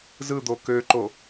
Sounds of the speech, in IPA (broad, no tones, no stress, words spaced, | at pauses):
zɯd̪o køǃo